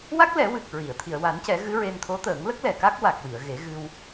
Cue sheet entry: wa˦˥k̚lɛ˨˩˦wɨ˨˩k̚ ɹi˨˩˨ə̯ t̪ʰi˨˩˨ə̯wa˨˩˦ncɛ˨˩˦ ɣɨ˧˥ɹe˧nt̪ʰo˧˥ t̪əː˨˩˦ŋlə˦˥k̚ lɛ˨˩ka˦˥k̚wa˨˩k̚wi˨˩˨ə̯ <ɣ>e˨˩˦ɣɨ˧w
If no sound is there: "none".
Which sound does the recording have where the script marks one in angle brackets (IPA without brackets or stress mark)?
ɣ